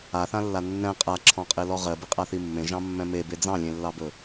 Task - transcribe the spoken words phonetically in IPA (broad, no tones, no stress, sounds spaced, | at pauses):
a θ ã lː a nː ɛ̃ qʼ a ǁʰ ɔ̃ qʼ e l ɔ ʁ ɜ b i qʼ a θ i mː ẽ ʒ ɑ̃ mː ɛ̃ m e b e d͡z ɑ̃ lʲ ẽ lː ɑ b ɵ